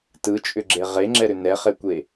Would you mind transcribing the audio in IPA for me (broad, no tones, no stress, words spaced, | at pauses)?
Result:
tɯt͡ʃʼʏɡ͡ǁe ʁeŋ͡ǁɛɾʏ nɛχekʷe